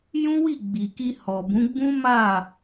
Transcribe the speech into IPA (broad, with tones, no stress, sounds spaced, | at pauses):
j ũ˦ w i˦˨ ɡ͡b i˨ k i˧ h ɔ˨ b ũ˨˦ ɡ͡b ũ˦ m a˦˨